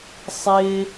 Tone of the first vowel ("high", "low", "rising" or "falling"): high